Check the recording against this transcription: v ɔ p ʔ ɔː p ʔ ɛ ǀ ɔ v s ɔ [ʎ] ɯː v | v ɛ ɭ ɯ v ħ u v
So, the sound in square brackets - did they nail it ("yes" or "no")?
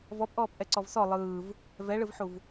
no